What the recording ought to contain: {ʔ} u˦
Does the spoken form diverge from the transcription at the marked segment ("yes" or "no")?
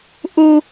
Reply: no